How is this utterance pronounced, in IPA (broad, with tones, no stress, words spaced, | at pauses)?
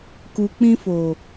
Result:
ku˨k͡pĩ˧fo˨